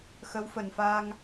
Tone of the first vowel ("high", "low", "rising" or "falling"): rising